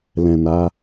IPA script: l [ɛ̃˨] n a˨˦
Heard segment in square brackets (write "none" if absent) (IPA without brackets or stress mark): ɛ̃˨